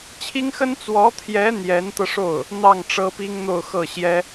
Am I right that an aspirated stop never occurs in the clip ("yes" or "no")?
no